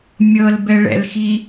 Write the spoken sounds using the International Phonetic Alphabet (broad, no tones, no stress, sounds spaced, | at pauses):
mʲ ɤ l b ɛ ɭ ɛ̰ l x i